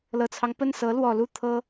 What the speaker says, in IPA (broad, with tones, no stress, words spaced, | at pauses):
lɤ˨˩t͡sʰɑ˦ŋpə˥˩nsɤ˧˥ lwɔ˨˩ lu˥˩ t̪ʰɤ˥